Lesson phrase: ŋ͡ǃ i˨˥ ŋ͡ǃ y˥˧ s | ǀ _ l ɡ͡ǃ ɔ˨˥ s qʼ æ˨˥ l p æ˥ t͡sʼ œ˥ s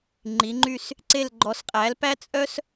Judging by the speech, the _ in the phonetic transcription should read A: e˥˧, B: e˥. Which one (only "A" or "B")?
A